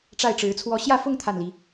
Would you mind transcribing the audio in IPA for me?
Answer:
ʈ͡ʂa˥˩ɪ̯ʈ͡ʂɻ̩˧˥t͡sʰwɔ˥˧ ɕjä˥˧fʊ˥˧ŋ t̪ʰa˥˩nli˧˥

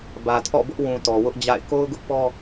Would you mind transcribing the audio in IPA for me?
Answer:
bä˨tʰɔ̰˦˨bʊ˦ʔ wũ˨ tɔ˨wʊ˦ʔd͡ʑa̰˦˨ɪ̯ ko˦ʊ̯ɡʊ˦ʔpɔ˦

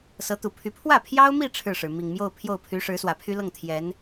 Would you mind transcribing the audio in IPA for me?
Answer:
sɤ˧˥t̪u˨˩pʰy˧˥ pʰwä˥˩pʰjɑ˥ʊ̯mi˥˧ ʈ͡ʂʰɻ̩˥˩ʂɻ̩˩ mi˨˩ŋmjo˥˧ʊ̯ pʰjo˥˩ʊ̯pʰy˧˥ ʂɻ̩˧˥swä˨˩pʰy˥lɤ˥˩ŋ t̪ʰjɛ˧˥n

